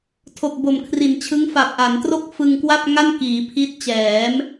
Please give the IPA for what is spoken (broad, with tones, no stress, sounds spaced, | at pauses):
tʰ o˨˩ k̚ b o˨˩ m kʰ r i˩˦ n t͡ɕʰ ɯ˦˥ ŋ f a˨˩ p̚ ʔ a˩˦ n t r o˥˩ k̚ f ɯ˧ ŋ k w a˥˩ p̚ ŋ a˥˩ n k iː˩˦ pʰ i˦˥ t̚ t͡ɕ ɛː˩˦ m